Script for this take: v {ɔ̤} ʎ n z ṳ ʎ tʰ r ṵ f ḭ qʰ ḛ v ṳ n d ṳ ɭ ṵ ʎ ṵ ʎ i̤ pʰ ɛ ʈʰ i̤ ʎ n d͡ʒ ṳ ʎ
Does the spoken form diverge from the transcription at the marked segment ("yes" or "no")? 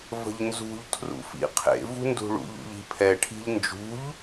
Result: yes